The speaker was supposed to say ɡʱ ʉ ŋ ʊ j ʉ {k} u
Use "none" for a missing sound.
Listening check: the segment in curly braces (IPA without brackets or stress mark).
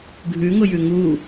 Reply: ŋ